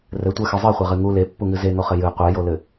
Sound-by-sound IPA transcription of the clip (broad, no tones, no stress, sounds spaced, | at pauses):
r ɘ tʷ ɛ x ɨ zˤ ɨ χʷ ɛ ʁ ɨ ŋ u l e pː u ŋ ɨ z e ŋ o χ ɘ j ɨ qʷ ɛ j o l ɘ